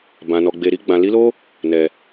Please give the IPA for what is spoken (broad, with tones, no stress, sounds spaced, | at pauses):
b ã˨ n ɔ˨ ɡ͡b e˨ ɾ i˧ ɡ͡b ã˨ l i˨˦ l o˦ | n ɛ˨